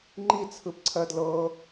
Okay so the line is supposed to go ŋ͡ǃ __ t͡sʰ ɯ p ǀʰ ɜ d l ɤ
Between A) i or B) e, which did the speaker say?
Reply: A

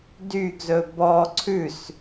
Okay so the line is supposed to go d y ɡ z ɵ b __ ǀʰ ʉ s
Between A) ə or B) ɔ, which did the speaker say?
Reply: B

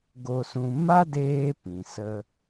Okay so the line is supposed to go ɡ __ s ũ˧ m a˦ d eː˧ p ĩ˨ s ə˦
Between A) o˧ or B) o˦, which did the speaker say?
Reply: A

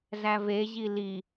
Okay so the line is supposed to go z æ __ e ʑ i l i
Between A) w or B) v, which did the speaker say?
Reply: B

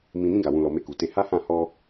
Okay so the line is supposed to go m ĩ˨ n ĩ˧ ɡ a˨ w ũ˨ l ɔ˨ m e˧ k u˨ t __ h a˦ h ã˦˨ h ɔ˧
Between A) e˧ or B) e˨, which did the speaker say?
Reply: A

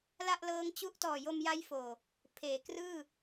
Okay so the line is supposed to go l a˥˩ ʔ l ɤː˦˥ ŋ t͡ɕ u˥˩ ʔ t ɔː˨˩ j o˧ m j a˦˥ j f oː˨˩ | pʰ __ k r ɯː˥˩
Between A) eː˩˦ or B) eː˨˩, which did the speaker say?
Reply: A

